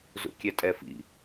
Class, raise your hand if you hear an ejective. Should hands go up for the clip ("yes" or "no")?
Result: yes